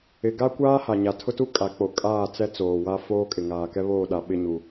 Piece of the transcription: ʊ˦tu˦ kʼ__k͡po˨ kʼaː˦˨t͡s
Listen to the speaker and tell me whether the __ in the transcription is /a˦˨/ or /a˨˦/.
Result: a˨˦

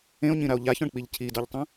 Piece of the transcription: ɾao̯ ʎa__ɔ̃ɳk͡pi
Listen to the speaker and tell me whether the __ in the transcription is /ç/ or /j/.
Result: ç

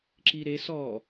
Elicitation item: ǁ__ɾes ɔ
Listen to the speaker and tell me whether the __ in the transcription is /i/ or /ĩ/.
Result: i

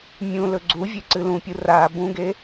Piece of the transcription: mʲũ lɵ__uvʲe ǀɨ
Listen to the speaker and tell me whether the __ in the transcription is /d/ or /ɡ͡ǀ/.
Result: ɡ͡ǀ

